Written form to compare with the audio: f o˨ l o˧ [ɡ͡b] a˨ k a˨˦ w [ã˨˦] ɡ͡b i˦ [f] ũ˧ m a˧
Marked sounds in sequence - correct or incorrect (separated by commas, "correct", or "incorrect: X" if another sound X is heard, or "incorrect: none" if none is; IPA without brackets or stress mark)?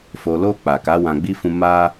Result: incorrect: k͡p, incorrect: ã˧, correct